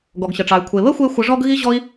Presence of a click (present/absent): absent